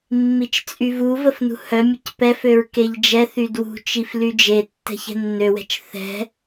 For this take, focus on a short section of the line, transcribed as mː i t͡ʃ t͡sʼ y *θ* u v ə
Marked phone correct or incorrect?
incorrect